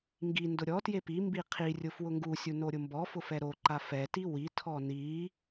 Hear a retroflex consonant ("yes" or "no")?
no